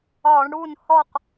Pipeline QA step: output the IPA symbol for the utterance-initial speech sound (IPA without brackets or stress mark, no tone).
ɒ